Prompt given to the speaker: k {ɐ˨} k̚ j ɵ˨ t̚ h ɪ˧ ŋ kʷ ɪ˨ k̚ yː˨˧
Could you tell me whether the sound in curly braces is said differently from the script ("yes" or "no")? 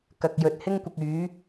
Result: no